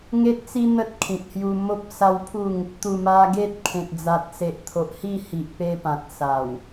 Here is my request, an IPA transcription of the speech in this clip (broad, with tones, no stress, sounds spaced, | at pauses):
ŋ e˦ t̚ t͡s i˦ n̪ ə˦ t̚ kʰ ĩ˨ t̚ h j u˧ m o˦ p̚ s a˦ w pʰ u˥˧ ŋ | t̪ u˨˩ m a˧ ɡ e˦ t̚ kʰ ẽ˨ t̚ d͡z a˨ t̚ s e˨ ʔ t̪ʰ o˨ ʔ h i˥˧ h i˨ ʔ p e˧ p ã˨ t̚ s a˨˩ w